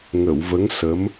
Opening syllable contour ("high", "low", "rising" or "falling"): low